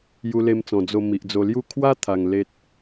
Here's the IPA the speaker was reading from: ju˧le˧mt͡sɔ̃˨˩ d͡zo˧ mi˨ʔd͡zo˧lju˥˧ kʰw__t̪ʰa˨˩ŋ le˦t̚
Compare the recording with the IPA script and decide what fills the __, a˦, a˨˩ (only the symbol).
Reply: a˦